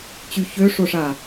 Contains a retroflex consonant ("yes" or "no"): yes